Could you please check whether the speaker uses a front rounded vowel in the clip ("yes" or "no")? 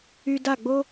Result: yes